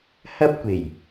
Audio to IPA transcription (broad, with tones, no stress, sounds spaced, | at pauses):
h ɐ˥ p̚ kʷ e˨˩ j